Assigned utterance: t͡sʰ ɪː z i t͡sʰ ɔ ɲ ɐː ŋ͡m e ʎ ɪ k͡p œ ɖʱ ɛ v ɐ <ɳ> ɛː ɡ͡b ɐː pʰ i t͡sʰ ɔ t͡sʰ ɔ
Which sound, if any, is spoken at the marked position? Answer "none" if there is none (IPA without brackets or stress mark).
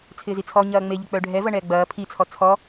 ɳ